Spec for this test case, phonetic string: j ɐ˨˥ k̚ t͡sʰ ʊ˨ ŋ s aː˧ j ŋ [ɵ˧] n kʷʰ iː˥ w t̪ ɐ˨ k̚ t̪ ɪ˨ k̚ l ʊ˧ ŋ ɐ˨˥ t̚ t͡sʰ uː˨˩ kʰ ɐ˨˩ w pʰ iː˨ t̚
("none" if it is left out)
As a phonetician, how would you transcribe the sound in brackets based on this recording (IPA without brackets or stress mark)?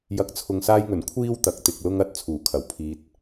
ɵ˨˩